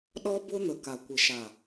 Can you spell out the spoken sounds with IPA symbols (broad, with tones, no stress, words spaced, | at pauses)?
ɗɔ˦bʊ˦n̪ə˨ ka˨kʷɪ˨ʃa˨